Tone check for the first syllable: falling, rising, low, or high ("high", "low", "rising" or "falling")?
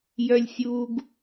low